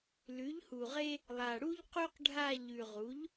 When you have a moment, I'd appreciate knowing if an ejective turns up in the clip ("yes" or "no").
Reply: no